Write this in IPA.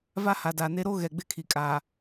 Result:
v a˦ h a˨ d a˨ n e˦ ɾ o˦ ɣ ɛ˨ ɡ͡b ɪ˦ kʰ i˨ kʼ a˨

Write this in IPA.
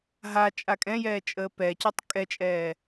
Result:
ɦ a t͡ʃʼ a kʼ ɛ̃ j ɛː t͡ʃʼ əː p ɛ c œ tˤ kʼ ɛ t͡ʃʼ ɛː

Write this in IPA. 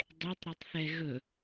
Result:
dˤ e tˤ ɾ ɔ tˤ θ ɛ ɣ ɵ

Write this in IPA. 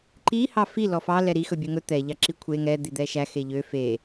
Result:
ǃ i h ɑ f i l ɔ f ɑ l ɛ ɾ i x ɵ bʲ ø ŋ ɵ t̪ ɛ ʎ ɑ ǁ i kʷʰ e ŋ ɛ d̪ i d̪ ɛ ʃ æ x e ʎ ø f e

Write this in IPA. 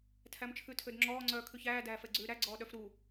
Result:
tʰ æ m t͡ʃʰ ʉ tʰ ø d ŋ͡ǁ ɔː ŋ͡ǀ œː kʰ ʉ ç æː d æː f ɛ ɡ͡ǀ ʉː ɾ æ ɡ͡ǀ ɔː ɗ œ f ɾ u

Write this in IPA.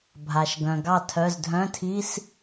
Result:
bʱ a˩ ʃ ɡ œ̃˩ ɡ ɑ˥˩ tʰ œ˩˧˩ z dʱ œ̃˧˥˧ tʰ i˧˥˧ s

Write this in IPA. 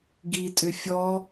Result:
ɡ i tʼ ʏ fʲ ɔ

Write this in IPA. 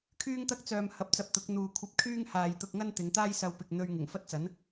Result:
kʰ yː˥ ŋ t̪ ɐ˥ k̚ t͡s œː˨ m h ɐ˨˥ p̚ t͡s ɐ˨ p̚ t̪ ʊ˨˥ k̚ n̪ uː˨ kʷʰ ɐ˧ p̚ kʰ yː˥ ŋ h aː˨ j t̪ ʊ˧ k̚ ŋ ɐ˥ n t̪ ɪ˨˧ ŋ t̪ aː˥ j s ɐ˧ w p ɪ˨ k̚ n̪ ɵ˧ ɥ ŋ ɪ˨˩ ŋ f ɐ˥ t̚ t͡s ɐ˨˥ n

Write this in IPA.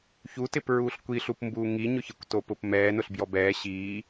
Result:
ç u t ɪ p ɹ uː ɬ kʷ i ɬ u p m b uː ŋ i ɲ ʊ ç ɪ kʷ t o p ʊ p m ɛː n ʊ ɬ b j ɔ b ɛː ɕ iː

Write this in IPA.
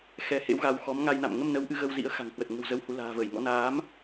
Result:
x ɛ˨˦ h ḛ˧˥ w ɣ a˧ w x ɔ˨˦ m ŋ a˧ j n a̰˧˨ m ŋ ə˧ m n ə˨˦ w ʔ ɨ˨˦ ɣ ə˧ w z ḭ˧˥ ə̯ x a̤˨˩ ŋ h w ə˨˩ t̚ ŋ ə̤˨˩ w z ə˨˦ w h u˨˦ l a̤ː˨˩ v ə˧˩ j ŋ ɔ̰˧˥ n aː˨˦ m

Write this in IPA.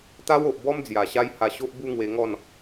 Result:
t̪ a˦ w o˨ ʔ b ɔ˦ m d͡z j a˨˩ ɕ a˦ j h a˧ ɕ o˦ ʔ b u˦ ŋ w e˧ ŋ ɔ˥˧ n

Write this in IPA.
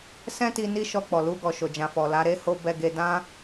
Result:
s ɛ̃˦ t i˧ n i˦ ʃ ɔ˧ k͡p ɔ˨ l u˧ ɡ ɔ˨ ʃ o˨ d͡ʒ ã˨ f ɔ˨ l a˨˦ ɾ e˦ h o˦ b ɛ˧ ɡ e˧ d ã˦

